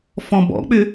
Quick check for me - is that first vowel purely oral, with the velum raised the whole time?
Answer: no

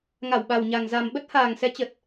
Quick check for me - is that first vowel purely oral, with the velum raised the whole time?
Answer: yes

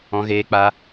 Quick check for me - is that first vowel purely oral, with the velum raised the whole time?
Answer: no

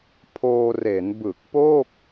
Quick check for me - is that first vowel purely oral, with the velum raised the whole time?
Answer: yes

